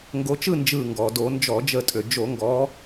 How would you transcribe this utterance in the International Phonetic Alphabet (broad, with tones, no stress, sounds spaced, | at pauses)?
ŋ ɡ o˨˦ t͡ʃ ɯ˥˨ n d͡ʒ ɯ˧˩ ŋ ɡ ɔ˩ d o˧˩˧ n d͡ʒ ɔ˧˩˧ d͡ʒ ə˧˩ tʼ ø˩ d͡ʒ o˧˩˧ ŋ ɡ ɔ˨˦